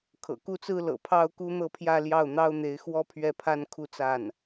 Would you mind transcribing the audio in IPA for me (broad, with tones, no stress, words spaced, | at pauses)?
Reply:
kʰɤ̰˨˩ku˥t͡sɹ̩˥lɤ̰˨˩ pʰɑ˥ʊ̯ku˥n̪ɤ˥˧pʰjä˥˧ ljɑ˥˩ʊ̯n̪ɑ˥ʊ̯n̪e˧˥ɪ̯xwɔ˥ pʰɥɛ˥˩pʰa˥nkʰu˥˧ t͡sa˥˩n